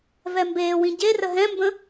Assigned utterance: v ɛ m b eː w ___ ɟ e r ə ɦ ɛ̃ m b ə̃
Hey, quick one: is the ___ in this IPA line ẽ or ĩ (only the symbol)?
ĩ